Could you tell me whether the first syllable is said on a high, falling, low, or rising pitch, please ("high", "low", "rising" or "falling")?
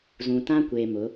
low